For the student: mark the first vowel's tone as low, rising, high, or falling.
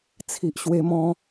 low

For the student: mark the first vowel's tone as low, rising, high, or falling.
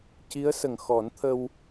rising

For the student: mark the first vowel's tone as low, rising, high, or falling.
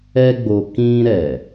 high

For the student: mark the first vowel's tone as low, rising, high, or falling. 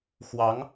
rising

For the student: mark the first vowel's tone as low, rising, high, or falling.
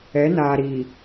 rising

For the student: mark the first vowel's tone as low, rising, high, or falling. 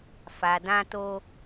low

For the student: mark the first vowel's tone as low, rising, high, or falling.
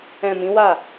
low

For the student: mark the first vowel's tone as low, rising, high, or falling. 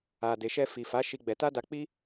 low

